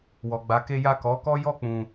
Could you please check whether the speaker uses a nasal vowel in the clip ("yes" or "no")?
yes